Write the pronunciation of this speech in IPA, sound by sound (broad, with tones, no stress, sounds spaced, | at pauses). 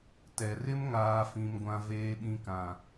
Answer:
t ɛ˨ r ɪ˦ m ŋ aː˨ f ĩ˨ m ɡʷ ã˨ v eː˨ ɓ ĩ˨ k ã˨